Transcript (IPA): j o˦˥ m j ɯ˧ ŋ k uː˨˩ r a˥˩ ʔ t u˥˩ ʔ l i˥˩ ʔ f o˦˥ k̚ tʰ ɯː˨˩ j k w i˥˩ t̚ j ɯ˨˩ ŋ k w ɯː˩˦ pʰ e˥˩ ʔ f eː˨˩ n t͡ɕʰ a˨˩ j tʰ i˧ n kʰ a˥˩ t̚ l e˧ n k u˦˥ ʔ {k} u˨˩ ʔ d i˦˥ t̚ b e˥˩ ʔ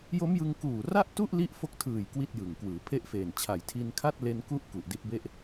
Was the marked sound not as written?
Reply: no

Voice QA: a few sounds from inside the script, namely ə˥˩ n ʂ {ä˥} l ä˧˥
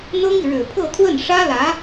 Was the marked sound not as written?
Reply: no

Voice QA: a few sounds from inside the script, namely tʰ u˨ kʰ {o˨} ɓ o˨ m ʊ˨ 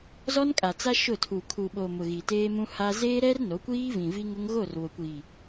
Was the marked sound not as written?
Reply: yes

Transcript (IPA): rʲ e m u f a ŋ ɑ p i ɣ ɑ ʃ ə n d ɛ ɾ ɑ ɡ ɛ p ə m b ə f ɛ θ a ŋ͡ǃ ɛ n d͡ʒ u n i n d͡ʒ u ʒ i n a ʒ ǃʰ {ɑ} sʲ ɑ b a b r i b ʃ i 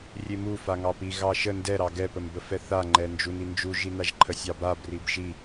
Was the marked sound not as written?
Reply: yes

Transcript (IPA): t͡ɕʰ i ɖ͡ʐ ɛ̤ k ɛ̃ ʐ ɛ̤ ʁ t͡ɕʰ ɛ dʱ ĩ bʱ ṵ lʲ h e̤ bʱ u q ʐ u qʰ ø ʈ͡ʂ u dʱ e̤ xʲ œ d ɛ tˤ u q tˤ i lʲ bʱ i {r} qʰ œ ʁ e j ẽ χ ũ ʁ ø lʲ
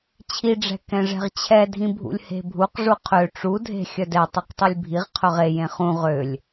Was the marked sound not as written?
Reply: yes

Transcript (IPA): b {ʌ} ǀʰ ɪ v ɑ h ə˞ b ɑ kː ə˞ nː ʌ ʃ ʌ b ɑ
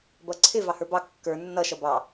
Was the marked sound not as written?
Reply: no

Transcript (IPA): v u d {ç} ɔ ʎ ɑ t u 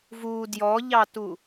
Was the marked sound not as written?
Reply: yes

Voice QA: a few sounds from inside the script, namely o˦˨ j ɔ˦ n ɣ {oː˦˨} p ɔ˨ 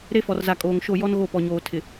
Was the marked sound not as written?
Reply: yes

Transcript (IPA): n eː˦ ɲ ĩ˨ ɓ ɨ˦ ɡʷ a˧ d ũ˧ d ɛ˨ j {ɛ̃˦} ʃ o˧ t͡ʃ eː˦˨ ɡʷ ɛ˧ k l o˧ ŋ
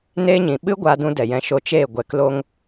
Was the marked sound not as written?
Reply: yes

